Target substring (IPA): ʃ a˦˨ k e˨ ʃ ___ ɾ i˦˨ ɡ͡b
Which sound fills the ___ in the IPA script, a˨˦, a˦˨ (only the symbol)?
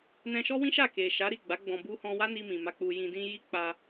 a˨˦